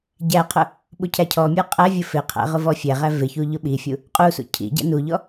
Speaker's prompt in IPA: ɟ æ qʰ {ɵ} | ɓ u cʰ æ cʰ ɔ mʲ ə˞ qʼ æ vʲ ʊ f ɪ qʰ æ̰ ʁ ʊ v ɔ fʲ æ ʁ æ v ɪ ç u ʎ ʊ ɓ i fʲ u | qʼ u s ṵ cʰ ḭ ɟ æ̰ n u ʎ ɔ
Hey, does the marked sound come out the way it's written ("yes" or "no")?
no